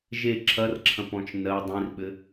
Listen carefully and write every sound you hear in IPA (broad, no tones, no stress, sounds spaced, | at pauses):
ʒ e ǁʰ ɐ r ǁʰ ɐ̃ p ɔ̃ t͡ʃ n ɜ dˤ ĩ r ɓ ɘ